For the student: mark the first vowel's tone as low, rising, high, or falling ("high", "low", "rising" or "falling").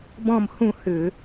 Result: falling